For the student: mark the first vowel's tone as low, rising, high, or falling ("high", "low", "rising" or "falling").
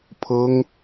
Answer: high